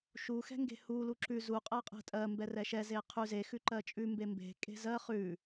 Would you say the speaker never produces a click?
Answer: no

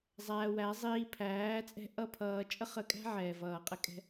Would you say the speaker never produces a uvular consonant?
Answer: no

